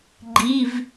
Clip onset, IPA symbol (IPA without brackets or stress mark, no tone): ɡ͡ǃ